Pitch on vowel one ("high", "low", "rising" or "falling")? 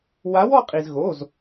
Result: rising